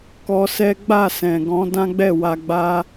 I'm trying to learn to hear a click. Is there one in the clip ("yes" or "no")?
no